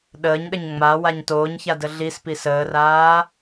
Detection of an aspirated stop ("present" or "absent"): absent